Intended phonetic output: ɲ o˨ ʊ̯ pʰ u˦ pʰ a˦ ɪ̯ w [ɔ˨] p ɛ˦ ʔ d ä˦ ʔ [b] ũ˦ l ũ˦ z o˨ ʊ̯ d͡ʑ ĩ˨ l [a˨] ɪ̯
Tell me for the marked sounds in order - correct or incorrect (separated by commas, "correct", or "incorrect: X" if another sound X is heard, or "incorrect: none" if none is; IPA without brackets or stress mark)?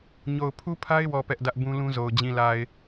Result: correct, correct, correct